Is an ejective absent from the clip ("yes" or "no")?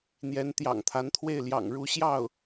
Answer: yes